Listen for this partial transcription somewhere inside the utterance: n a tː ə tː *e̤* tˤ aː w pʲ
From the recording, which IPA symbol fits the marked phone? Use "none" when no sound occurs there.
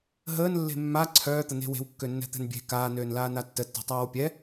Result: e̤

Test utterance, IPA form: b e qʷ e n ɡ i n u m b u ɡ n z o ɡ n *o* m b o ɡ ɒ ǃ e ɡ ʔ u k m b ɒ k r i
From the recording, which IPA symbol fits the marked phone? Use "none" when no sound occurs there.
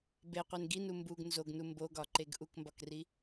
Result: u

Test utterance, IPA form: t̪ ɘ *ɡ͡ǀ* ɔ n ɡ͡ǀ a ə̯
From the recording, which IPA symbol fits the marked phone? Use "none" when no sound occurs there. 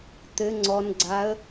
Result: ŋ͡ǀ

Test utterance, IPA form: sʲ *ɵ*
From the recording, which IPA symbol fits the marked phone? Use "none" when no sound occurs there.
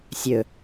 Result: ɵ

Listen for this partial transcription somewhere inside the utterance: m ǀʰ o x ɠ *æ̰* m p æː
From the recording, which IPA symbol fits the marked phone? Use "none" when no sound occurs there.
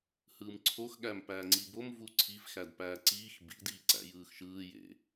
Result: æ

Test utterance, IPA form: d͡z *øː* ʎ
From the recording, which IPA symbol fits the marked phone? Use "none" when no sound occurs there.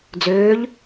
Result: øː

